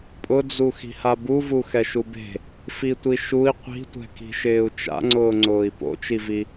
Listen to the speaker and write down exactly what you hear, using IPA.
pʼʊd͡zu xi̤habuvu xɛʃube̤ | fitʷiʃui̯ qʷi̤tʷɛ̤ki̤ʃɪːu̯ t͡ʃa̰ŋ͡ǀʊːŋ͡ǀʊːi̯ po̰t͡ʃivi

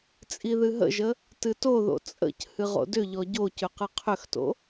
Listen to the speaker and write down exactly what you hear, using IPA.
t͡sʼiðɨɦə̰ʒə | tɨtoðo̰ t͡sʼə̰c hɨʁo̰dʏʎɔ ɟo cʏqɨqʰʏxto̰

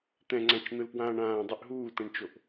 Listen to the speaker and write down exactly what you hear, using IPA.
t̪ɛ̃ŋ͡ǀãt͡ʃn̪ɯlpwãːɳ ãːdˤɨʔ ɦuːtɛ̃ɳt͡ʃoʔ

